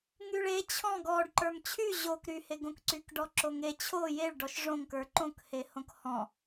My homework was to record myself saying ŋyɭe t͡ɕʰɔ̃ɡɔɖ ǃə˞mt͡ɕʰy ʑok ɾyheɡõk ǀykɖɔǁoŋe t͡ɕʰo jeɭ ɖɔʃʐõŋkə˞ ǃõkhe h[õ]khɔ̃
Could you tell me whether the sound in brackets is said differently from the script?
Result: no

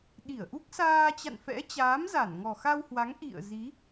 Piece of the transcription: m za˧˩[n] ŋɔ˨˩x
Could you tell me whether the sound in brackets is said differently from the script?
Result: no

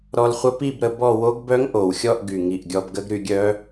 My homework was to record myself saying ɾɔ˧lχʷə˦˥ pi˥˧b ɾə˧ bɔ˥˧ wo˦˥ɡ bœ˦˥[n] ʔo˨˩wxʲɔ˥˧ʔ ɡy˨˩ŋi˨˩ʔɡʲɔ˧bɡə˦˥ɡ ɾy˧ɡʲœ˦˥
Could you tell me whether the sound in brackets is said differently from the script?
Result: yes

